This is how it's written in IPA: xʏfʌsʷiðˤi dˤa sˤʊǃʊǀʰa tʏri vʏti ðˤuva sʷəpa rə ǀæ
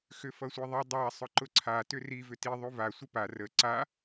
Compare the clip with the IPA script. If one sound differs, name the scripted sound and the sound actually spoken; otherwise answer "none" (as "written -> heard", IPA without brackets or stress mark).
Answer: æ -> a